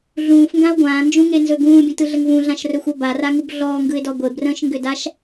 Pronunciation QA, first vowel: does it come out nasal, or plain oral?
nasal